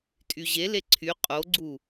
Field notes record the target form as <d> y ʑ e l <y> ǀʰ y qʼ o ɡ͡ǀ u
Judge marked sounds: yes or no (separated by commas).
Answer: no, no